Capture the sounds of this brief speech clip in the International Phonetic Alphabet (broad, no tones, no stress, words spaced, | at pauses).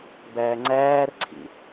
bæːŋ͡ǀæːrǀʰḭ